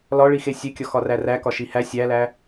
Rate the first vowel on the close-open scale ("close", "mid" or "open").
open